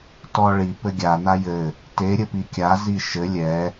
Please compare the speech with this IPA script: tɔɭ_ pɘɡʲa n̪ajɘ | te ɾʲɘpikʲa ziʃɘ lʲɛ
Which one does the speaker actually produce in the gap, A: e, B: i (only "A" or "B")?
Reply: B